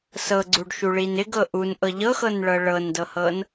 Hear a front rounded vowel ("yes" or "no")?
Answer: no